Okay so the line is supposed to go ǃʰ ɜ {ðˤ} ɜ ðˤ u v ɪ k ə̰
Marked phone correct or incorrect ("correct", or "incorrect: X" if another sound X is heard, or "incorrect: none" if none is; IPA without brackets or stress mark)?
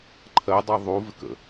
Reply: incorrect: dˤ